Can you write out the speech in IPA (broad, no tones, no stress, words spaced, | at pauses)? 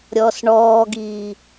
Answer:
ɾʲɔːsɳɔːɡiː